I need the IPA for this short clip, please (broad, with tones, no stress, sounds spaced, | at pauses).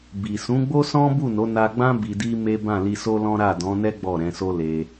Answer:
b i˨ s ũ˨˦ ɡ͡b o˦ s ɔ̃˦ b u˦˨ n o˨˦ n a˧ ɡ͡b ã˦ b i˧ d i˦ m e˦ b ã˦˨ l i˧ s o˦ l ɔ̃˦ ɾ a˦˨ d ɔ̃˨˦ n ɛ˦ ɡ͡b ɔ˦˨ ɾ ɛ̃˨˦ s o˦ l e˧